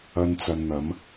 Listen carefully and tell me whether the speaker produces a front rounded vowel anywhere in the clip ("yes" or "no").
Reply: no